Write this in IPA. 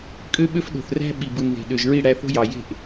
kʼ ø˦ ɓ ø˦ f ɗ o̤˨ θ r æ̤˦ ɓ i˨ b ɯ˨ n ð e̤˨ ɗ ø˨ ʒ ɹ i˦˨ ɽ æ˧ θ o̤˦ j ɑ˨ j e̤˦˨ ʔ

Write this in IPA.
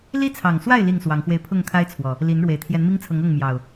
l i˦ t͡sʰ ɑ˨˩ ŋ s w a˥˨ ɪ̯ l i˥˨ ŋ s w ɑ˨˦ ŋ x w e˧ ɪ̯ pʰ ʊ˥˨ ŋ kʰ a˦ ɪ̯ t͡sʰ w ɔ˨˩ | l i˨˦ n ɻ w e˨˩ ɪ̯ t̪ʰ j ɛ˨˦ n m i˦ ŋ t͡sʰ ɤ˨˦ ŋ ɤ˥˨ ŋ m j ɑ˨˩ ʊ̯

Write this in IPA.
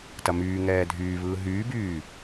t ɐ m yː ŋ ɛː dʱ yː β ɯː ɦ yː b yː

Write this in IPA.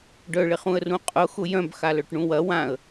ɖ œ ɭ ɪ χ ũ ə̯ r ũ qʼ ʊ x ʊ j œ̃ b x a l œ ʈ ɳ ũ w ɐ w ã ə̯

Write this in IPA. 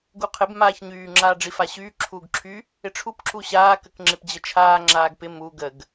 ɡ u qʰ ɪ b m aː ç ɲ yː ŋ͡ǁ aː ɖ͡ʐ i f a ɕ yː ǁʰ uː ɡ ǁʰ y | ɪ ʈ͡ʂʰ u p ǁ u ɕ aː k ə k ŋ͡ǁ ɪ p d͡ʑ ə t͡ʃʰ aː ŋ͡ǁ aː ɡ p ɪ m u ɡ ə ɡ

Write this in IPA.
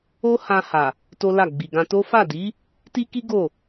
o˦ h ã˧ h a˨ | t o˦ l a˦˨ ɡ͡b i˨ ɡ ã˧ t o˦ f a˦˨ d i˨˦ | t i˦ k i˦ ɡ o˦˨

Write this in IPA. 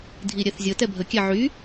dʱ i ɾʲ ɛ θ zʲ ə t ɛ bʱ ə kʲ ɛ ʕ y

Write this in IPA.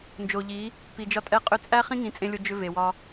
n d͡ʒ o˨ ʎ i˨˦ | p i˨ d͡ʒ ɒ˧ tʼ ɛ˧ qʼ ʏ˧ t͡sʼ æ˦ χ ĩ˦ ŋ ĩ˨˦ t͡sʼ ẽ˧ lʲ o˧ d͡ʒ ʏ˧ v e˨ w ɒ˧

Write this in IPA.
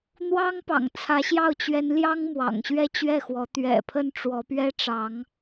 n̪ w ɑ˥ ŋ p ɑ̰˨˩ ŋ t͡sʰ ä˧˥ ɕ j ɑ˥˩ ʊ̯ t͡ɕ ɥ ɛ˧˥ n l j ɑ˥ ŋ m w ɑ̰˨˩ ŋ ɕ ɥ ɛ˥˧ t͡ɕ ɥ ɛ˥˩ x w ɔ˧˥ t̪ ɥ ɛ̰˨˩ pʰ ə˥˩ n ʈ͡ʂ w ɔ˧˥ p ɥ ɛ˥ ʈ͡ʂ ɑ˧˥ ŋ

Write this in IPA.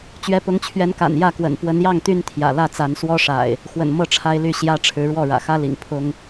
t͡ɕ ɥ ɛ˨˦ p ʊ˨˦ ŋ t͡ɕʰ ɥ ɛ˨˦ n k a̰˨˩ n j ä˥˨ k w ə̰˨˩ n p w ə˨˦ n j ɑ˥˨ ŋ t̪ y˦ n t̪ʰ j ä̰˨˩ l ä˥˨ t͡s a˨˦ n s w ɔ˦ ʂ a̰˨˩ ɪ̯ | x w ə̰˨˩ n m ɤ˥˨ ʈ͡ʂʰ a˦ ɪ̯ l y˥˨ ɕ j ä˦ ʈ͡ʂʰ ɻ̩˨˦ ɻ w ɔ˥˨ ɻ ä̰˨˩ x ä˦ l ḭ˨˩ ŋ pʰ ʊ˦ ŋ

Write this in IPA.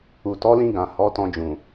u˨ t ɔ˨˦ l ĩ˧ ɡ ã˨ h ɔ˨˦ t ɔ̃˧ d͡ʒ ũ˨

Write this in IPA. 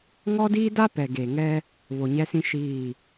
ŋ ɔ˦ d iː˦ d a˦ p ɛ˨ ɡ e˨ ŋ ɛ˦ | β o˨ ɲ ɛ˦ s ĩ˦ ʃ iː˦˨

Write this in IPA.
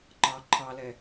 ŋ͡ǃ ɑ ǃʰ ɑ l ɛ

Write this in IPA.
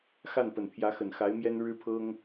x a˥˩ n p ə˨˩ n pʰ j ä˧˥ x ə˨˩ n x a˧˥ ɪ̯ m j ɛ˥ n ɻ ɻ̩˥ pʰ ɤ˥ ŋ

